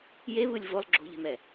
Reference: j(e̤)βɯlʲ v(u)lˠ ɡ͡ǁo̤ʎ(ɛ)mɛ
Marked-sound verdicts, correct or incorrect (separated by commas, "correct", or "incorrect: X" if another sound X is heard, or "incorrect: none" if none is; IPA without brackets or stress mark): incorrect: e, incorrect: o, incorrect: ɛ̤